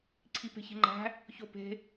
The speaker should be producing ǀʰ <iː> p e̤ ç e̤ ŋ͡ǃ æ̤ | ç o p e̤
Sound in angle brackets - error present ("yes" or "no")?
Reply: yes